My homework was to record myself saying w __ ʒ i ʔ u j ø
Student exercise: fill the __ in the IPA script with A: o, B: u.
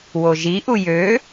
A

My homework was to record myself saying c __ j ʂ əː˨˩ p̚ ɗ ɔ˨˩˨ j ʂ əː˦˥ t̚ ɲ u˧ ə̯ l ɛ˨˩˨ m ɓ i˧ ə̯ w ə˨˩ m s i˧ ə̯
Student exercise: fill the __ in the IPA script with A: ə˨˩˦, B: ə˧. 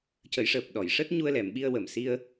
A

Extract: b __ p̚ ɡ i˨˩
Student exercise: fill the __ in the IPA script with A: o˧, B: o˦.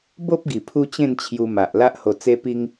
B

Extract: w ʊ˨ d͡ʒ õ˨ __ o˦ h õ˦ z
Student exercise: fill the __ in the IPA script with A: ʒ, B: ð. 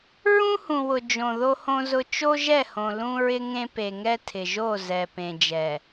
B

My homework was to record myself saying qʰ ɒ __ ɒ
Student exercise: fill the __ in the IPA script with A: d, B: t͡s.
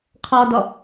A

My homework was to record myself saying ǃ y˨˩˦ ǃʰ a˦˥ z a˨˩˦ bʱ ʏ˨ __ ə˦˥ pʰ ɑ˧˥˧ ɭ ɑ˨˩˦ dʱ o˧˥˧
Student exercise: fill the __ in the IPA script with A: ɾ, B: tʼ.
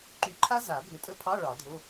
B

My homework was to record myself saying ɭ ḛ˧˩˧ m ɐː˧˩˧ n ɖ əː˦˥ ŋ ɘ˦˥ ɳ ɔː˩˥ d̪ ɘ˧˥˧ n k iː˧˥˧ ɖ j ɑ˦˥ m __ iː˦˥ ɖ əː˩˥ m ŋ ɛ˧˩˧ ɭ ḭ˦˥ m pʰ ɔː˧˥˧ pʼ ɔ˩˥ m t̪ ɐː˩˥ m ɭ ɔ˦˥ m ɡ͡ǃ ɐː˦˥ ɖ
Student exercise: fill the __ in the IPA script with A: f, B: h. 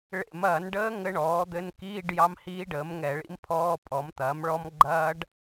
B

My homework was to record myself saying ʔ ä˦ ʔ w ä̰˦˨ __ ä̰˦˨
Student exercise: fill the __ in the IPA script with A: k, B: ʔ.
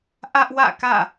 A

